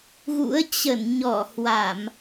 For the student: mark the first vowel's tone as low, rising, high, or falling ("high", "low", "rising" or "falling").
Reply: rising